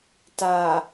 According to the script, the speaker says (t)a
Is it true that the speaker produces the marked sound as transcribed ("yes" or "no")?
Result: yes